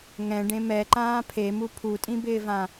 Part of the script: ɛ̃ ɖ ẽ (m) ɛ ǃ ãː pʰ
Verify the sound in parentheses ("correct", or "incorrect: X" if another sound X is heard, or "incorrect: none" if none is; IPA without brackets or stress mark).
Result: correct